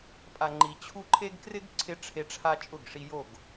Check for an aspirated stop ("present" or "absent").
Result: present